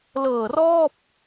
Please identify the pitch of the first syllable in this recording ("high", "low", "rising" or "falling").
low